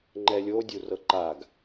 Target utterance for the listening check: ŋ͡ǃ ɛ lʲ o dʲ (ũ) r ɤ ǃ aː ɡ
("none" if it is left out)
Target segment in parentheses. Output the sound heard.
u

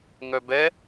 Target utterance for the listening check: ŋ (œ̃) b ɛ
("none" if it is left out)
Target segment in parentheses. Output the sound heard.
œ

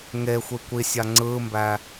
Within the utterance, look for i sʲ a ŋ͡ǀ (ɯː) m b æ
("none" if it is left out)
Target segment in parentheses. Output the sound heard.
ɯː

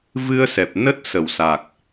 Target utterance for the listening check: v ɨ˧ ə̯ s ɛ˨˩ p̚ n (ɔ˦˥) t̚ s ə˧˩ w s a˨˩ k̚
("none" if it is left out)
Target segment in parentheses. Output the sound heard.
ə˦˥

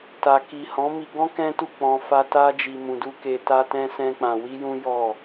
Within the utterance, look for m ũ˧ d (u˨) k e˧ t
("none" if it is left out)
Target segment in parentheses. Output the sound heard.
u˦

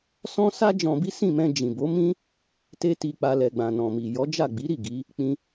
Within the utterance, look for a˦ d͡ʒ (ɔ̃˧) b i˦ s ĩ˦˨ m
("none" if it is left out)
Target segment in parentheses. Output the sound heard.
ɔ̃˧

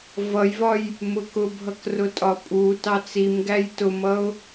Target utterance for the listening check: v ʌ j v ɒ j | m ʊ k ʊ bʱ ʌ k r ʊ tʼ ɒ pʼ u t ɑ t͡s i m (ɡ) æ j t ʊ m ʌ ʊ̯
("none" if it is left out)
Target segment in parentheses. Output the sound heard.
ɡ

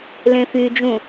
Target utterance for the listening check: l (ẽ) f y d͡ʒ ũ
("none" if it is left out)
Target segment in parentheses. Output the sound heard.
ẽ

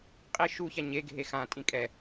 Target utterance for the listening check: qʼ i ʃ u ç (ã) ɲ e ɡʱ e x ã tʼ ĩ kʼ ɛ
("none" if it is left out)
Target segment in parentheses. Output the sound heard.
a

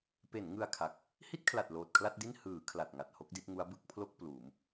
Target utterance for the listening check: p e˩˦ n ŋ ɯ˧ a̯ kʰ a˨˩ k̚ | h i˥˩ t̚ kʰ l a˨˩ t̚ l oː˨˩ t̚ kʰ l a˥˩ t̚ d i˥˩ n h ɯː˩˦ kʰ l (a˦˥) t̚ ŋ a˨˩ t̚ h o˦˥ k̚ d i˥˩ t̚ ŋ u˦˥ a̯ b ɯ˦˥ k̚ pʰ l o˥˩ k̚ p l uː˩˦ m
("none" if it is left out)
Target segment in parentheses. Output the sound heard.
a˨˩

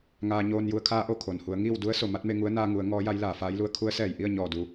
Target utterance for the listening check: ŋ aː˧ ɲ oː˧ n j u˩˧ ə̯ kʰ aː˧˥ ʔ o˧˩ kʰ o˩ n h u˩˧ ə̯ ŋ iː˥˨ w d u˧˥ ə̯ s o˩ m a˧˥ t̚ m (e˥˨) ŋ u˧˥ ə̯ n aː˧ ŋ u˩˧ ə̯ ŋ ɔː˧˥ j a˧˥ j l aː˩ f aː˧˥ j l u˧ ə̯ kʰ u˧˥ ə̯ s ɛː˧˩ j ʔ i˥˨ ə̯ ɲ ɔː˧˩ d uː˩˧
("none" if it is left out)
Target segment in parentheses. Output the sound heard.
e˥˨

